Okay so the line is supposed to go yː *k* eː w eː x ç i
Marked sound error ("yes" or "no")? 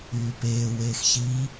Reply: yes